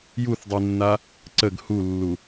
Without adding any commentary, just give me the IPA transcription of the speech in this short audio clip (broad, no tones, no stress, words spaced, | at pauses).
juθdˤinːa | ǀəɡ hulːu